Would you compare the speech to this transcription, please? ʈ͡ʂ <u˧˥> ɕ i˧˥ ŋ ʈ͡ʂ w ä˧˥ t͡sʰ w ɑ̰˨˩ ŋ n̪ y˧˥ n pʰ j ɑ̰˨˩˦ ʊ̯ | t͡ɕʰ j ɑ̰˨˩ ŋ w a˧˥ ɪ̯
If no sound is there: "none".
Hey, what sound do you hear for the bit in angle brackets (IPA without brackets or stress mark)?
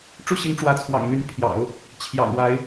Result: u˥˩